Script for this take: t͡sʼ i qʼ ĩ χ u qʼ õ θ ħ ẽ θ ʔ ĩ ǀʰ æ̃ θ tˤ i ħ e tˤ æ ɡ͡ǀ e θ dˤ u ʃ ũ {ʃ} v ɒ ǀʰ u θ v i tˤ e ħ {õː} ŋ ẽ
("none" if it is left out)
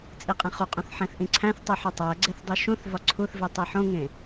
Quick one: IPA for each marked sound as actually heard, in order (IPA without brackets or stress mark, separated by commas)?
θ, õ